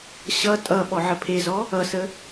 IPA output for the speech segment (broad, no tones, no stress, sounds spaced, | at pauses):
ɕ ʌ tʼ ʌ ɓ ɔ ʕ ə pʰ e z ɔ | ʌ s ə